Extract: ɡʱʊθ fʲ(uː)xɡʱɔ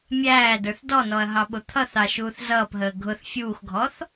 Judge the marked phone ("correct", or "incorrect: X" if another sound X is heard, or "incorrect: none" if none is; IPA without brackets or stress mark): correct